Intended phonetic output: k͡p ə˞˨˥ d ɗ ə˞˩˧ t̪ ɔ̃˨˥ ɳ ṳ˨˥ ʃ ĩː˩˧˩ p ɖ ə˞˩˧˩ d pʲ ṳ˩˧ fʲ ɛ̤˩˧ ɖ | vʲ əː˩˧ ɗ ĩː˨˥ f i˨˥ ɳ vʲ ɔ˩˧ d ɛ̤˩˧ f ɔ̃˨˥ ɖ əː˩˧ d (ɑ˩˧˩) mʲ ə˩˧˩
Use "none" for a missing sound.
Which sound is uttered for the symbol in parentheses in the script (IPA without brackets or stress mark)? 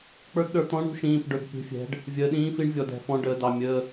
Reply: ɑ˩˧˩